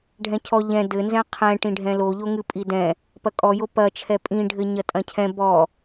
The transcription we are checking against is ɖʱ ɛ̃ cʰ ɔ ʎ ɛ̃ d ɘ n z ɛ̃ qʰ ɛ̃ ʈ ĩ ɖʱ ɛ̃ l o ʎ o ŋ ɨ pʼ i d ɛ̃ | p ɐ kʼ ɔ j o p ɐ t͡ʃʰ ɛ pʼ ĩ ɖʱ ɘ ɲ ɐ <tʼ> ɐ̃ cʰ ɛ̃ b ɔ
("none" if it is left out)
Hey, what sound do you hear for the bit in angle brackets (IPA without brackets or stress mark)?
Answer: tʼ